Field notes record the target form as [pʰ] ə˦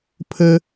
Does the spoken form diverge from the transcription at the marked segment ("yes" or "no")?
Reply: no